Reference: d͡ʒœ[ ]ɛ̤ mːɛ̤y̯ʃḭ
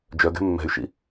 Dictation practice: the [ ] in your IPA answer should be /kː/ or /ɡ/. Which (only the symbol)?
ɡ